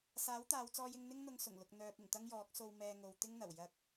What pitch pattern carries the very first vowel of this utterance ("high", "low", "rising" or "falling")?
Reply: rising